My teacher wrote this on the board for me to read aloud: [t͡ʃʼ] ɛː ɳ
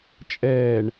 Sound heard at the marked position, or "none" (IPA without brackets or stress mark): t͡ʃʼ